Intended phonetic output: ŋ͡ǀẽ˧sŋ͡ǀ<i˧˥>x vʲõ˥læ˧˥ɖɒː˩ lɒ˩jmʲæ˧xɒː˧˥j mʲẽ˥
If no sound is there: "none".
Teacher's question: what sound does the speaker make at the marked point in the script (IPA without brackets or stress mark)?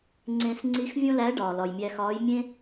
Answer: i˧˥